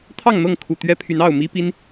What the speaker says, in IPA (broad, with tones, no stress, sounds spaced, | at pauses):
t̪ʰ ɑ˥˨ ŋ n̪ ɤ˥˨ ŋ kʰ u˨˩ t̪ ɥ ɛ˦ pʰ y˨˦ n ɑ˥˨ ʊ̯ m i˦ p i˦ n